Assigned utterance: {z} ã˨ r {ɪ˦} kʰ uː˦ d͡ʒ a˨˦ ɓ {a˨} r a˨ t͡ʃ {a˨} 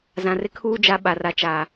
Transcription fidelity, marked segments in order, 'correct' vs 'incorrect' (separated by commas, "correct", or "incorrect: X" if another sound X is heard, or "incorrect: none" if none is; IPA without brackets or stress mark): correct, correct, correct, incorrect: aː˨